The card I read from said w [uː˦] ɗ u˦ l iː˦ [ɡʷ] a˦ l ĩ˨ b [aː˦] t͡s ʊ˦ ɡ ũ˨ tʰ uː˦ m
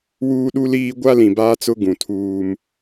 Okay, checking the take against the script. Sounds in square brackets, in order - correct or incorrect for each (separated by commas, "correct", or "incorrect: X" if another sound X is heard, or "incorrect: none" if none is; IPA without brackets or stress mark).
correct, correct, correct